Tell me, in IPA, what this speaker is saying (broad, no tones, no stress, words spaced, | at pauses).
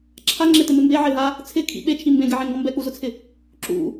ǁʰaŋ͡ǁetɪmɪ mbeʕeɦa | t͡sʰɪkʰḭ ɓet͡ʃʰi mbẽɡɛʕẽŋɡɔ̃ mbɛk͡puzʊt͡sʰɪ | ǁṵ